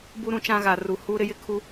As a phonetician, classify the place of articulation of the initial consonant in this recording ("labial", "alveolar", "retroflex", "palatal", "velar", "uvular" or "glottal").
labial